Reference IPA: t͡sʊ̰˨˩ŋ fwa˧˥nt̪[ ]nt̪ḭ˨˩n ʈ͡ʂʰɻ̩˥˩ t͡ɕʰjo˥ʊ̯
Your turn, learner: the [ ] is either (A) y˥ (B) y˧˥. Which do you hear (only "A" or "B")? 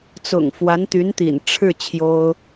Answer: B